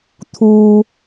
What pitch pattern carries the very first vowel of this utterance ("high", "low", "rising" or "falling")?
low